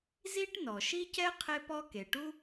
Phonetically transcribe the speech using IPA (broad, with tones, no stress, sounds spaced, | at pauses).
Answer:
z i˥ ʈ n ɔ˩ ʃ i˥ c ɛ˥ qʰ e˦ p ɔ˦ k e˩ ʈ u˥